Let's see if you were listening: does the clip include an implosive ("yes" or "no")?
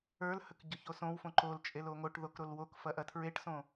no